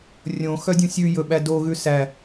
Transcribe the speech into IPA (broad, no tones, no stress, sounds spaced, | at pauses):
rʲ õ x œ dʲ ũ sʲ ʉ j ɵ ɓ æ d o ɣ ʉ s æ